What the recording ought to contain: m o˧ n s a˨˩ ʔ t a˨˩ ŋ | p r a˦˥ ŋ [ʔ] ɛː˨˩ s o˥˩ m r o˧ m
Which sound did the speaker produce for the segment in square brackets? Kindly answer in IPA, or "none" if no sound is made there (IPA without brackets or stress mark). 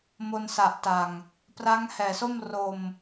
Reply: h